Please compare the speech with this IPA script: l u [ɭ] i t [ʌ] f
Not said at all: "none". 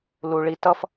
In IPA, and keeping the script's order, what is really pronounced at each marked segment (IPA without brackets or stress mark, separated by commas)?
ɭ, ʌ